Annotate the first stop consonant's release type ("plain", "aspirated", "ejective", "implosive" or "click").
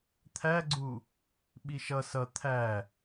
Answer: aspirated